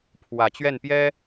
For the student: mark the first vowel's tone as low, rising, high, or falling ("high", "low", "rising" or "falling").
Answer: low